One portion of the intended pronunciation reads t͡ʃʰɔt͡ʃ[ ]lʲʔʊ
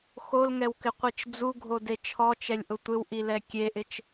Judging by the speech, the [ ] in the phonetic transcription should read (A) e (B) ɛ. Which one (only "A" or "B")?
B